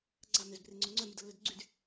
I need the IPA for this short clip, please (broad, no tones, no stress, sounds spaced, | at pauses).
ɡ͡ǀ a m ʏ z b r e ŋ͡ǀ o ŋ͡ǀ œ m y d ə lː œ d ɡ͡ǀ y d